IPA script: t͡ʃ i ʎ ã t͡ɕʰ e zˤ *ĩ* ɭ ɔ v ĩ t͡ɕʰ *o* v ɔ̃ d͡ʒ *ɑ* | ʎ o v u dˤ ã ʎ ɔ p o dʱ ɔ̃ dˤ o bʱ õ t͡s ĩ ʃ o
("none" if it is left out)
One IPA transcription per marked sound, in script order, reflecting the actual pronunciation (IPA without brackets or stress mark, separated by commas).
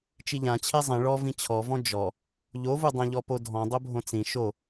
ĩ, ɔ, ɔ